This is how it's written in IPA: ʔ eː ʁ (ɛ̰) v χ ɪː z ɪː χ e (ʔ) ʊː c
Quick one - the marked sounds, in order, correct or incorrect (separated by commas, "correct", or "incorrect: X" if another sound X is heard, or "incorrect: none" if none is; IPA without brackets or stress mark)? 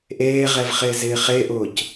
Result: incorrect: ɛ, correct